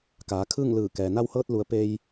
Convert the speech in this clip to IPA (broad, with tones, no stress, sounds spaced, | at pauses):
k aː˩˧ kʰ ɯː˥˨ ŋ l ɯː˧˩ k ɛː˩ n a˧ w h ɤː˧ t̚ l u˩˧ ə̯ p e˧ j